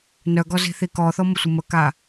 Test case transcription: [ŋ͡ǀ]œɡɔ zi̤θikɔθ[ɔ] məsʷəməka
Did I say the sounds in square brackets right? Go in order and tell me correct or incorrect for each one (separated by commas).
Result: incorrect, correct